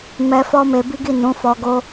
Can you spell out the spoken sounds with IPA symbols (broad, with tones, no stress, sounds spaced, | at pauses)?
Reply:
m ɛ˧ f ɔ˦ m e˧ b i˦ ɡ i˦˨ n ũ˨˦ f ɔ˧ ɡ o˦